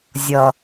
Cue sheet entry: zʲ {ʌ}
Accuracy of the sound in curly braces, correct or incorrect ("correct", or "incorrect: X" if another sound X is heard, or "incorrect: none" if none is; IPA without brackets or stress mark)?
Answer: correct